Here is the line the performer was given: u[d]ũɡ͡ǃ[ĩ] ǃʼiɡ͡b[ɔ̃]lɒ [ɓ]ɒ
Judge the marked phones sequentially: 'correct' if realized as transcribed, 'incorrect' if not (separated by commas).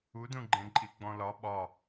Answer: correct, incorrect, correct, correct